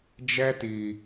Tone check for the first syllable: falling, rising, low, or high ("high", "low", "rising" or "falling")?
high